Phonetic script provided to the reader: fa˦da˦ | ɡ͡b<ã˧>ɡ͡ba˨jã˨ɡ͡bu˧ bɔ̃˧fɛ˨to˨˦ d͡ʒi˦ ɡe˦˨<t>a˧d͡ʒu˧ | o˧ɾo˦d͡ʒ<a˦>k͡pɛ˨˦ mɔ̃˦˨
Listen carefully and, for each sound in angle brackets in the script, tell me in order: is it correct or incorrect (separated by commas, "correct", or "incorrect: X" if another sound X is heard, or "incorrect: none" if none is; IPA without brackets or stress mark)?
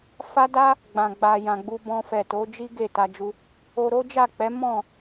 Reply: incorrect: ã˨, correct, incorrect: a˦˨